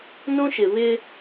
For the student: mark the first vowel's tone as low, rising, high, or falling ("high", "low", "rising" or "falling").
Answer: high